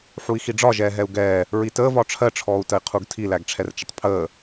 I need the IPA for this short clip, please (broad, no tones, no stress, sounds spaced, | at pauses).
ħ u i̯ x i ɖ͡ʐ ɒ ʒ ɛː ɦ ɛ u̯ ɡ ɛː | ɹ i t əː v ɒ ʈ͡ʂʰ ɜ ʈ͡ʂʰ ɔː u̯ t ə i̯ qʰ u ɡ tʰ i l æ ɡ ʈ͡ʂʰ ɛ r t͡ʃ ə tˤ pʰ əː